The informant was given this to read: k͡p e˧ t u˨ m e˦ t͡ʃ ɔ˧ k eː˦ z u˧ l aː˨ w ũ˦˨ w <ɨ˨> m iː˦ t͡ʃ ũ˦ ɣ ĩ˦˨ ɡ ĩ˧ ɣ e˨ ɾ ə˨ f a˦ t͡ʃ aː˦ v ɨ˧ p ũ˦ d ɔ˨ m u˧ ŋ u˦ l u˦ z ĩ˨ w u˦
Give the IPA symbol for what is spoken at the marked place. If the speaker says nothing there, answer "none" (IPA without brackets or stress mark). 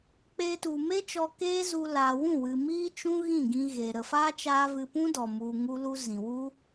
ɨ˨